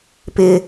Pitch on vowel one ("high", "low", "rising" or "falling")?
high